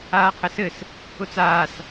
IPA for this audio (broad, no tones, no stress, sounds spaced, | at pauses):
aː qʰ ɘ s ɘ s | ʊ t͡s aː s